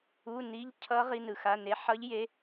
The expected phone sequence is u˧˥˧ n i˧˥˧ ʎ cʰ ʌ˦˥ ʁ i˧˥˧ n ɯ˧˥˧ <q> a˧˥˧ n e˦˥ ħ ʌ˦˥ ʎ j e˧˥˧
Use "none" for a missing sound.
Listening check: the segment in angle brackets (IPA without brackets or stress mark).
x